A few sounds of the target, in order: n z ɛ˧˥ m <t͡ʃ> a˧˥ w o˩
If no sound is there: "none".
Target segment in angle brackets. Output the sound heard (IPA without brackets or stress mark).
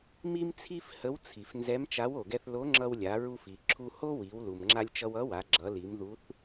t͡ʃ